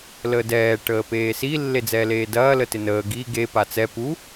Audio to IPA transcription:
ləːdɛː ʈəːpeːsi lːed͡zɛːleːdɐː lətɪnəː ɡi ɡe pat͡sɛ pu

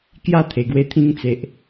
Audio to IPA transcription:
kja˥˧t̪ʰe˨˩ɡwe˧ t̪ʰĩ˧ŋt͡se˨ʔ

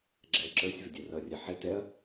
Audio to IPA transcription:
ɡ͡ǁɛ ǁə˞sʲvɪ dʲɛrʌrʲæ ħɪ tɛɐ̯

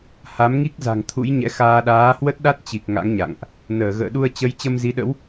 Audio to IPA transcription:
ha˨˦mŋi˦˥k̚ za̤˨˩ŋt̪ʰṵ˧˥jɲɛ̰˧˥xaː˧ ɗaː˨˦hwə˦˥t̚ɗa˦˥t̚t͡ɕi˨˩k̚ ŋa̰˧˥ŋɲa̰˧˨ŋʔ | nəː˧˩ ɣə̰ː˧˨ɗu˧ə̯t͡ɕə˨˦j t͡ɕə˧mzi˨˦ɗə̰˧˥w

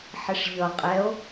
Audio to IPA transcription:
ħɪʂʎʌ qʼɛo̯

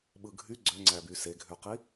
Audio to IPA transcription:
ɓɯɡʱy ɡ͡ǀøŋ͡ǀæby seɡʱøqi

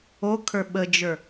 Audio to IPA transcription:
okʰə˞ ɓəd͡ʒə˞

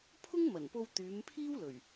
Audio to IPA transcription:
pʰʊ˥ŋmɐ˨˩npo˧w t̪yː˨˧mpʰiː˥wlɵ˨˩ɥ

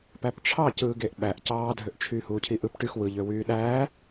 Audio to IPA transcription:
pæpt͡ʃʰɑ cɯːɡeʔɓæʔ cɑːdʱøʔt͡ʃʰyː huːcʰiʔɯp ʈyx wɯʎ øwyːɗæː

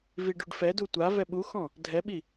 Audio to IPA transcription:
viɖuɖfɛdu tʷa vɛɓuxɔ̃ | dʱɛɓi

